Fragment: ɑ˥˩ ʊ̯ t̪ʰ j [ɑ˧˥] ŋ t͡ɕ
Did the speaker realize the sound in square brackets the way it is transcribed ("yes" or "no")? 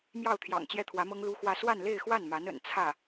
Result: no